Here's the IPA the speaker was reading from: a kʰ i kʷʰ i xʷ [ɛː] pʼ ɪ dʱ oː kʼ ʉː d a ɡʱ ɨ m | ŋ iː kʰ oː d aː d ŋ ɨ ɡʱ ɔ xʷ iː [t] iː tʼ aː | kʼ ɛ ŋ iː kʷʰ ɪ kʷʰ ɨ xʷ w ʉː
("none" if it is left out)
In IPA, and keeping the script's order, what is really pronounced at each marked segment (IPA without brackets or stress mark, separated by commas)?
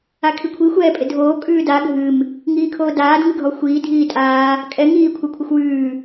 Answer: ɛː, dʱ